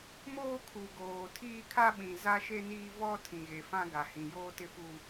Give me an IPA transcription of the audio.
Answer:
m oː˦ kʰ u˨ ɡ oː˨ tʰ iː˦ kʰ a˦ ɓ ĩ˨ z a˦ ʃ e˦ n iː˦ v ɔ˦ tʰ ĩ˨ ɣ e˨ f ã˦ ɡ a˨ h ĩ˨ j oː˦ t ɪ˦ f u˦

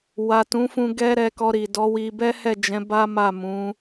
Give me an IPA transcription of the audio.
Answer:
w a˨ t ũ˨˦ f ũ˧ ɡ ɛ˦ ɾ ɛ˧ k ɔ˧ ɾ i˨ d ɔ˨˦ w i˧ b ɛ˦ h ɛ˦˨ d͡ʒ ɛ̃˨˦ b a˦ m a˦˨ m ũ˨˦

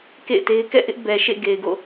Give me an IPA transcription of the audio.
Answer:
k ḛ˦˨ ɪ̯ t e˦ ɪ̯ k ɛ̰˦˨ ʔ ɪ˦ ʔ b ɛ˨ ʃ ḛ˦˨ ɡ e˨ ɪ̯ ɡ o̰˦˨

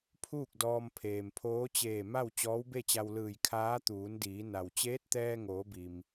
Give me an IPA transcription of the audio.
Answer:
pʰ uː˥˨ k̚ d ɔː˧ m pʰ eː˩ m pʰ oː˧˥ t͡ɕ eː˧˩ m a˥˨ w t͡ɕ ɔː˧˥ w b e˥˨ t͡ɕ a˧ w l ɯː˧˩ j kʰ aː˧˥ t̪ uː˩˧ n d iː˩˧ n a˩ w t͡ɕ eː˧˥ t̚ t̪ ɛː˧ ŋ oː˩˧ b i˩ m

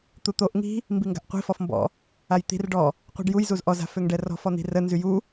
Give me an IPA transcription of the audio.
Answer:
t̪ u t̪ o ʔ ŋ i̤ | m b i ŋ ɡ a̤ ʔ qʷ i̤ f ɔ f m b ɔ̰ | a j t̪ i̤ r ɖ ɔ | qʷ i̤ ɖ j u j z u z ʔ ɔ z a̤ f ø ŋ ɖ ɛ r ɔ̤ f ɔ n̪ i̤ r ə n z y j u

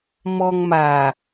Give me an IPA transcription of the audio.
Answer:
m ɔ ŋ m a

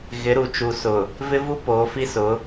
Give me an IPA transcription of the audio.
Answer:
ɣ ɪ˨˦ ɾ u˨ t͡ʃ u˨ s ʊ˨ | v ɪ˦ v u˦ p oː˨˦ f i˦ s ʊ˨˦

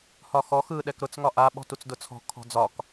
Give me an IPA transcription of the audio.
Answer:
h ɒ x ɔ x ɯ ɗ ɛ k ɾ ʊ t͡s ŋ ɒ ʔ a ɓ ɔ̤ t u t͡s d ʊ t͡sʰ ɔ̤ kʰ ɔ̤ d͡z ɒ k

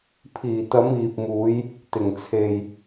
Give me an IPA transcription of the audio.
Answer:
pʰ iː˨˩ t̪ ɐ˨˧ m iː˨ p̚ m uː˨˧ j | t̪ ɪ˨˩ ŋ t͡sʰ e˨ j

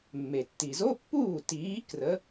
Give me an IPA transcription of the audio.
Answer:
mː e˩ tː i˩ z o˧˥˧ pː uː˥˩ t iː˨˥ k r ə˨˥

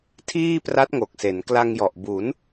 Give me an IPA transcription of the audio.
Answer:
tʰ iː˥˩ p r a˦˥ t̚ ŋ o˨˩ k̚ s e˩˦ n k l a˧ ŋ j ɔ˨˩ ʔ b u˩˦ n

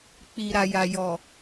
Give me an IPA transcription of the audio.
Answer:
k͡p i˨ ɾ a˨ j a˨ j ɔ˨

